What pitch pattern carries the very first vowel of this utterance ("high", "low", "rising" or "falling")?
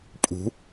rising